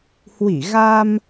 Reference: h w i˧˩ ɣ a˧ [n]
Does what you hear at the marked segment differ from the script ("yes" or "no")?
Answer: yes